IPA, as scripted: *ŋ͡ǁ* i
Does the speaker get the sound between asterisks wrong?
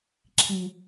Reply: yes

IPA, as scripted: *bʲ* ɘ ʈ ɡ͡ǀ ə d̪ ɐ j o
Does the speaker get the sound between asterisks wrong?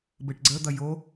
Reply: yes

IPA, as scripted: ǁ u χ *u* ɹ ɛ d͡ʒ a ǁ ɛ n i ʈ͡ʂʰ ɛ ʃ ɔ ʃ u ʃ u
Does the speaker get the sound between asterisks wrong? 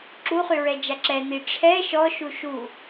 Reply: yes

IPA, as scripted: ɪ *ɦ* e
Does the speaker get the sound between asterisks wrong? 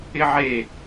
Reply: yes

